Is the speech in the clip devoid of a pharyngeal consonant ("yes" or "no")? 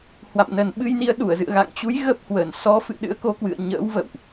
yes